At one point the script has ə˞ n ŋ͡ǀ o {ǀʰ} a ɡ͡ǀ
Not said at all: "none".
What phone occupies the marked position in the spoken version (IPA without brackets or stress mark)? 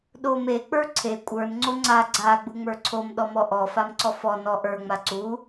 ŋ͡ǀ